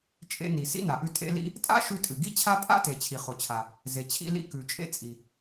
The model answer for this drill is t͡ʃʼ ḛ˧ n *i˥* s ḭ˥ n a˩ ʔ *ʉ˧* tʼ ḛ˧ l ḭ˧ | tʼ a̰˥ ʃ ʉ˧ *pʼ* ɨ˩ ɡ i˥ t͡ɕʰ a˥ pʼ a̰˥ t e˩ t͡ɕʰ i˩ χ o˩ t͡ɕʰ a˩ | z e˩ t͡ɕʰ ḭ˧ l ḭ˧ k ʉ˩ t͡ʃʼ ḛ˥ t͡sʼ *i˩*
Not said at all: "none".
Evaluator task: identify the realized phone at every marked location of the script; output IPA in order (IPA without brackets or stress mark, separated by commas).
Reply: i˩, ʉ˧, tʼ, i˩